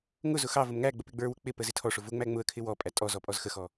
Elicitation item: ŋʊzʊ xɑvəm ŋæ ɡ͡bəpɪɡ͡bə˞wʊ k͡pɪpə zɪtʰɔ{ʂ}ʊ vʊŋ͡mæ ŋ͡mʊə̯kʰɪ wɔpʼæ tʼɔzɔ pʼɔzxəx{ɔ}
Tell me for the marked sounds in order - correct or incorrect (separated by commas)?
correct, correct